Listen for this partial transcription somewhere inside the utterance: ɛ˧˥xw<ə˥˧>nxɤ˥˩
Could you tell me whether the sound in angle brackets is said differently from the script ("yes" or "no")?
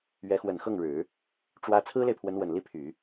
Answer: yes